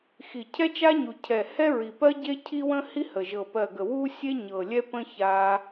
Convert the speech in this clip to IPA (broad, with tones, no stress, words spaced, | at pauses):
xi˨˩ cʰɛ˥t͡ʃa˥ɲu˨˩cʰɛ˨˩ hɛ˥ɹi˨˩pɜ˥ɟe˥ cʰi˥wə̃˥hi˥hə˨˩ ʒɤ˨˩pɜ˨˩ɡə˨˩ wu˥sʲe˥ ɲɤ˨˩lʲɛ˥pə̃˥ ça˥